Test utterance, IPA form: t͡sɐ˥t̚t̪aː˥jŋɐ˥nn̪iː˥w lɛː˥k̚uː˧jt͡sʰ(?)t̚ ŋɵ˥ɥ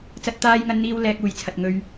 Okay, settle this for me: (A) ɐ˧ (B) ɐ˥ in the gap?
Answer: A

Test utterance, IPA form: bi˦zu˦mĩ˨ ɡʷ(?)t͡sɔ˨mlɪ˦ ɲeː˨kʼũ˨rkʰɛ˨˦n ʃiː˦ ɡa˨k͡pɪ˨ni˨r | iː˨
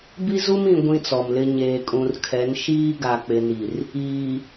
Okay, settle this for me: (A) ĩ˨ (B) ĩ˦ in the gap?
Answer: B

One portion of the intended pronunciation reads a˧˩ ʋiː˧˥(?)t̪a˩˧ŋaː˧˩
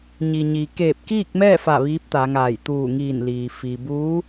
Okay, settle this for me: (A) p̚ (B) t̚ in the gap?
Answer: A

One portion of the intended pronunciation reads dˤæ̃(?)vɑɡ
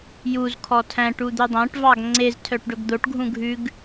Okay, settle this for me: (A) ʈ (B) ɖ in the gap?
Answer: A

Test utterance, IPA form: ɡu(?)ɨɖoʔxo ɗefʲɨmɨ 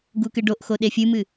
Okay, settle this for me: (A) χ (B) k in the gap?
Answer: B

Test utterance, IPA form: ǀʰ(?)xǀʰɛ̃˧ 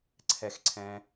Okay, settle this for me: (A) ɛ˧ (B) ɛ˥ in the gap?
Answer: A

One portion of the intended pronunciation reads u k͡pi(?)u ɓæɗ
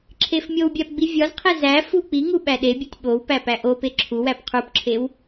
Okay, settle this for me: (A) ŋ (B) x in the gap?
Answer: A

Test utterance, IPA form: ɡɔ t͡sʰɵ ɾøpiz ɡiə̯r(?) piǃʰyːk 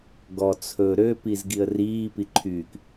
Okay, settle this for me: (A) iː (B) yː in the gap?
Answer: A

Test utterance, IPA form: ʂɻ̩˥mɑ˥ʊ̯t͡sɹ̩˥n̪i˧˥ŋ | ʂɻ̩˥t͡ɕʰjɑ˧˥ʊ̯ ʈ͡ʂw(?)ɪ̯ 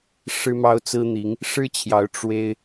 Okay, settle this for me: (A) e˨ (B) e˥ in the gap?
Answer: B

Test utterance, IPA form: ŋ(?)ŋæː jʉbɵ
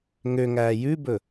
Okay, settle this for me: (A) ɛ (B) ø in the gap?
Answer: B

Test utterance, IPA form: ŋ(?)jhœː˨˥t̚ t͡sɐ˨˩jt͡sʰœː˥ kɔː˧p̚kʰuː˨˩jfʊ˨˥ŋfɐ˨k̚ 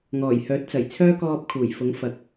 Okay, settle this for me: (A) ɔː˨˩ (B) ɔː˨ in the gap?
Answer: A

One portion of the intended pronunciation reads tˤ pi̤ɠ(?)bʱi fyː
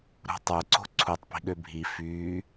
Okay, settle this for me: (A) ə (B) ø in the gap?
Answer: B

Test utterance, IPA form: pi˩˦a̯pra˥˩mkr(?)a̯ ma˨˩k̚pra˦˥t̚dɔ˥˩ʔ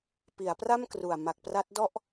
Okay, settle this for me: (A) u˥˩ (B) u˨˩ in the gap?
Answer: B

